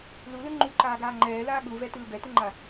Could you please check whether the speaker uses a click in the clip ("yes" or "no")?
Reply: yes